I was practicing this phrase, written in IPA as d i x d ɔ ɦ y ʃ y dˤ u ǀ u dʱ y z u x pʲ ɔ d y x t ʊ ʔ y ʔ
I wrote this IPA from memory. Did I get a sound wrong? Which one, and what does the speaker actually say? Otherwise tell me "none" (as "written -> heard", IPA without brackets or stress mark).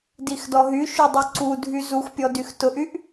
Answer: none